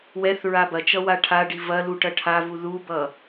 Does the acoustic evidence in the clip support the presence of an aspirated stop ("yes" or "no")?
yes